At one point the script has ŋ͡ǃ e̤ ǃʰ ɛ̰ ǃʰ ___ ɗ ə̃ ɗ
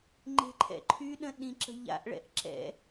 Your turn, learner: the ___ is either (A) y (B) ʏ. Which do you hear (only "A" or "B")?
A